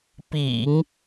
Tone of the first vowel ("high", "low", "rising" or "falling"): low